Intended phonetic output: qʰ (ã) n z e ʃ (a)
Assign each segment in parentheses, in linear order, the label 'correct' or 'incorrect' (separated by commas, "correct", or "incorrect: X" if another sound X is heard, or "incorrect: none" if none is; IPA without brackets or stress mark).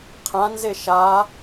correct, correct